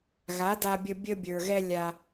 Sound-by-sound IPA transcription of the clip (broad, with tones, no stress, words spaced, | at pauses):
ɣa˨˦da˧bʲə˧ bʲə˧bʲə˞˨ɣɛ˧ lʲa˧